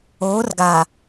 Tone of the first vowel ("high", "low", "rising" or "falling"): rising